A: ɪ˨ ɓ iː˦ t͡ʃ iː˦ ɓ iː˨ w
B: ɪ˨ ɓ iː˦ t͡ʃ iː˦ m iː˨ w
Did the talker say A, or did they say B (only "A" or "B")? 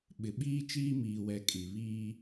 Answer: B